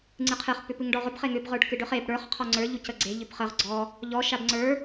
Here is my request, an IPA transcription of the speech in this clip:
ŋ͡ǀ ɨ qʰ ɨ χ p ʏ p ɨ ŋ ɖ ɔ ʁ ʏ b χ e ŋ ʏ b ʁ ə˞ ɖ k ɨ ɖ ʏ χ e b ɽ ə˞ χ qʰ ɔ ŋ͡ǀ ə˞ ʎ u c ə ɡ͡ǀ e ʎ ʏ b χ ə ʁ ɡ͡ǀ ɔ | ʎ ɔ ʃ a b ŋ͡ǀ ə˞

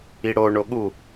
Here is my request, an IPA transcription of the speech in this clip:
i ɽ o ɳ o ɠ u

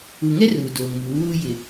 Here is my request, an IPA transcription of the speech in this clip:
u˨ ŋ ɛ˦ r uː˨ d oː˨ ŋ m uː˨˦ w uː˦ j ɪ˨

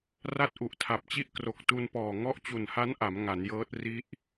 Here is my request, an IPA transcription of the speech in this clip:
r a˥˩ t̚ ʔ u˨˩ ʔ tʰ a˨˩ p̚ t͡ɕ i˥˩ ʔ k r o˨˩ k̚ t u˧ n p ɔː˨˩ ŋ ɔ˦˥ ʔ t͡ɕ u˨˩ n h a˦˥ n ʔ a˩˦ m ŋ a˩˦ n j ɤː˦˥ t̚ r i˦˥ ʔ

